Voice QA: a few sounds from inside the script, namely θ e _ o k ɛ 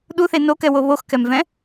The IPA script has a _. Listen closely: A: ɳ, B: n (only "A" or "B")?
B